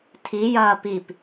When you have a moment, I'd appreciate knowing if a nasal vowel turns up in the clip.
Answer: no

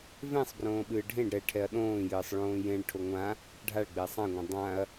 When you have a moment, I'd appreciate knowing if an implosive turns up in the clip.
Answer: yes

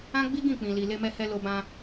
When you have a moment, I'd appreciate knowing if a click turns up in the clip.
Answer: no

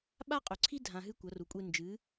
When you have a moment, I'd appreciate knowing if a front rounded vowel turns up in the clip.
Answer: no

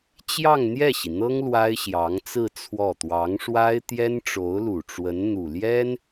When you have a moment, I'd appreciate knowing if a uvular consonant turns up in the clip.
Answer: no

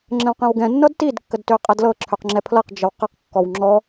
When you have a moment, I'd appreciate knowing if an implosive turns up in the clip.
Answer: no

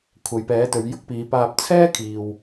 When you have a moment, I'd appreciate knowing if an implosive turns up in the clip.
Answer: no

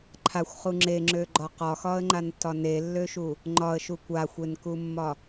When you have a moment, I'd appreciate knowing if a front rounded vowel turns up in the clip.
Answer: yes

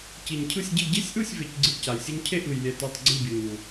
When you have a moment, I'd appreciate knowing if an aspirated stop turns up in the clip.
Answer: yes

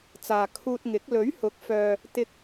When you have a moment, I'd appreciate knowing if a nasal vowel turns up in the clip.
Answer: no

